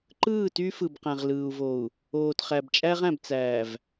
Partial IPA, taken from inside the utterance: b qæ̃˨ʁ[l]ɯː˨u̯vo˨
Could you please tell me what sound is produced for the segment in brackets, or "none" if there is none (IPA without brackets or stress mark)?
l